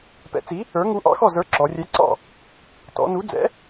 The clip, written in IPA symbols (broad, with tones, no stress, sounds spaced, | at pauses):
p ɛ̰˨˥ t͡s i˨˥ | ə˞˨˥ ŋ u˨˥ ʔ ɑ̰˨˥ x ɔ˥˩ z ə˞˨˥ ǁ ɔ˩˧ rʲ ɛ˨˥ ǀ ɑ̰˥˩ | t ɔ̰˩˧ n u˨˥ d͡z ɛ̰˨˥